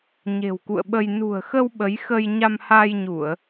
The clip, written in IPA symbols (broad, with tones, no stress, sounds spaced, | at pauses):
ɲ e̤˨˩ w k ṵ˧˨ ə̯ ɓ ə˧ j n ṳ˨˩ ə̯ x ə˧ w ɓ ə˨˦ j x ə˧ j ɲ a˧ m h a˧ j ɲ u˧˩˨ ə̯